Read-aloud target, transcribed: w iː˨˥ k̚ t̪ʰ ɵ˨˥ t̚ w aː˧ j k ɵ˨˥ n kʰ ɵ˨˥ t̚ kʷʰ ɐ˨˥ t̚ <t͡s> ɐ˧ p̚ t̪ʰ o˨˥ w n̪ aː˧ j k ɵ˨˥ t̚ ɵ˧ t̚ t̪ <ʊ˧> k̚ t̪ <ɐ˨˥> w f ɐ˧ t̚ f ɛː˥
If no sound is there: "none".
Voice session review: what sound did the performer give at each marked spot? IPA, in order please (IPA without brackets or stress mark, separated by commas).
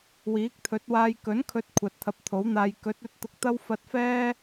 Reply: t̪ʰ, ʊ˧, ɐ˥